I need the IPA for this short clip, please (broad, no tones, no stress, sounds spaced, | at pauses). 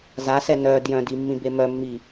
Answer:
z a s ɛ n œ d j œ̃ d i mː ĩ b e m œ mː i